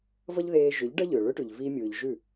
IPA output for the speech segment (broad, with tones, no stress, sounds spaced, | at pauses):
v ʌ˦ ʎ ð eː˧ ʒ ʏ˨˦ ʎ ɖ ʌ˦ ʎ ʏː˨ ɭ ʏ˦ ʈ ʉ˨ ʎ v i˧ mʲ ɯː˨ ʎ ʒ ʉ˦˨